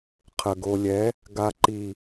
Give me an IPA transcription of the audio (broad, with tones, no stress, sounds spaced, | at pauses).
qʰ ə˨ ɡ o˨ lʲ ɛ˨˦ | ɡ a˨ ǃ i˨